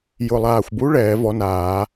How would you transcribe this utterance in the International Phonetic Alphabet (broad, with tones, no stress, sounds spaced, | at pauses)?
j ʊ˨˩ lˠ aː˨˩ xʷ b u˨˥ ɭ ɛː˨˩˦ v ɔ˨˥ n aː˨˩˦